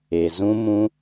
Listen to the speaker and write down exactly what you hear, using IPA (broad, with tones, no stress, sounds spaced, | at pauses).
e˨ z ũ˦ m ũ˦